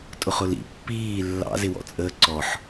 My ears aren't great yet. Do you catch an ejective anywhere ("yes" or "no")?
yes